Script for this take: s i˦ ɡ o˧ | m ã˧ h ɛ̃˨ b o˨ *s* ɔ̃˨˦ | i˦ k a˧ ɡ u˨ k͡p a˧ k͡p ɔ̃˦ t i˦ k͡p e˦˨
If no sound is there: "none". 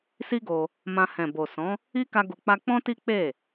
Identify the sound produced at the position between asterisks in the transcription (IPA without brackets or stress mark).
s